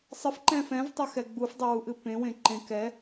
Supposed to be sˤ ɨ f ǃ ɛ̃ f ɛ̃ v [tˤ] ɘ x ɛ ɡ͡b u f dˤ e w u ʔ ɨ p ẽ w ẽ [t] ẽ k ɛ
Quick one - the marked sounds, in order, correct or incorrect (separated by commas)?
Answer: correct, incorrect